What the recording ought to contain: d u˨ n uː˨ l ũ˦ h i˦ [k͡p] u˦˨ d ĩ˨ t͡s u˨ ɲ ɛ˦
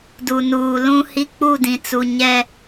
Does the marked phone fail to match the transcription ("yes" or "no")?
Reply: no